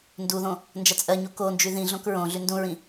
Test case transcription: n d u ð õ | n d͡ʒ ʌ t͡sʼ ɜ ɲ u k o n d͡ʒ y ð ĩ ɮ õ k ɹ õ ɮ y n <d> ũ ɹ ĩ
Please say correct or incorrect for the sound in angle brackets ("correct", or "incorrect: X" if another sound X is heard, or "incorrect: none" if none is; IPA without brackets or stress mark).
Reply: correct